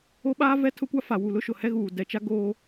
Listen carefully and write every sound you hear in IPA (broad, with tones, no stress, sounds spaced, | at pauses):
o˦ ɓ aː˦ v ɛ˦ tʰ ʊ˦ kʷ a˦ f a˨ w u˨ l ʊ˦ ʃ ʊ˨ h ɛ˦ ɣ uː˨ d ɛ˨ t͡ʃ a˦ ɡ oː˦